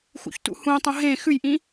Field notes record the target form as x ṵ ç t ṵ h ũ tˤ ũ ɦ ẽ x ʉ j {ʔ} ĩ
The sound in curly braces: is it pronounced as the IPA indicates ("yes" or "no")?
yes